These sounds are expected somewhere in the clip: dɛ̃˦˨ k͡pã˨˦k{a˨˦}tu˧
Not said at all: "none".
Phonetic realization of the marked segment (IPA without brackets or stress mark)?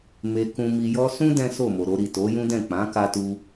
a˧